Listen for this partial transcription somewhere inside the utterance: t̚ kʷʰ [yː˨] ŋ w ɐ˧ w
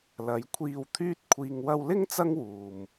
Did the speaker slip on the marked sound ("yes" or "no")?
yes